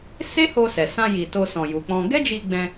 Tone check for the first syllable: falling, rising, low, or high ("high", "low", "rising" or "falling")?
high